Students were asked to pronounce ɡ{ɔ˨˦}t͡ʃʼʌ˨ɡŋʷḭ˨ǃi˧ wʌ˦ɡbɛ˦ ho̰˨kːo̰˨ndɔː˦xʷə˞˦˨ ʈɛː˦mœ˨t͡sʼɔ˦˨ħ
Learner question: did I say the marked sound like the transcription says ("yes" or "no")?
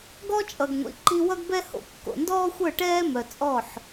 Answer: no